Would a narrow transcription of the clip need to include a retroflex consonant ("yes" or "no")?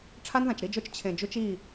yes